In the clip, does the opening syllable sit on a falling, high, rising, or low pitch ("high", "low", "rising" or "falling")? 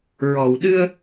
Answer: low